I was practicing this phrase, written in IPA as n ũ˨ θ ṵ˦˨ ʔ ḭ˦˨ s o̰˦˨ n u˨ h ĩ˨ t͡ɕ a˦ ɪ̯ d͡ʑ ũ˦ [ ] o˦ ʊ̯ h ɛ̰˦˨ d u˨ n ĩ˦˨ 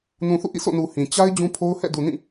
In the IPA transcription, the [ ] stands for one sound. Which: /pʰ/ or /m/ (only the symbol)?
pʰ